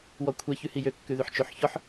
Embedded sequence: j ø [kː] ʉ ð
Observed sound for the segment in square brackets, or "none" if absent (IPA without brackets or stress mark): kː